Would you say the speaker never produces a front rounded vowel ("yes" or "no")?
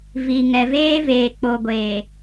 yes